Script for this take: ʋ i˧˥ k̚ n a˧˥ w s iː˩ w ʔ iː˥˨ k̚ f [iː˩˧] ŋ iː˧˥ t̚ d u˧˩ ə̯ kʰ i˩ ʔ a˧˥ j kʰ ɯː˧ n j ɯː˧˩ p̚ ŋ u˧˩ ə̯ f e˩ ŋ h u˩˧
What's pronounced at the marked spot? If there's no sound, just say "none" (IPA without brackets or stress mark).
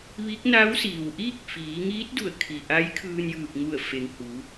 iː˩˧